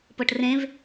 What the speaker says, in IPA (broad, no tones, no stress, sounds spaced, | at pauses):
p ɤ ʈ r ẽ v